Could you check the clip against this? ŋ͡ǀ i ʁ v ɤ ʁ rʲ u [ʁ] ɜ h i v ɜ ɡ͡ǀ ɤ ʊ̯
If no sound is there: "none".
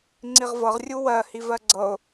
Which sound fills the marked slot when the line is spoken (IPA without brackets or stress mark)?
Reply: w